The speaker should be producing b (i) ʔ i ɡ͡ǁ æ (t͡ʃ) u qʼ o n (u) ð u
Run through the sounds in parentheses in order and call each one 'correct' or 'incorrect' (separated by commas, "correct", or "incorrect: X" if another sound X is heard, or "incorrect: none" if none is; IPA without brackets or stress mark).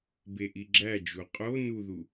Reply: incorrect: e, incorrect: d͡ʒ, correct